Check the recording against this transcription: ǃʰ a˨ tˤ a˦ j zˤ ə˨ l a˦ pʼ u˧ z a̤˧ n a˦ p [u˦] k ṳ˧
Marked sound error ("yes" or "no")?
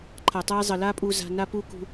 no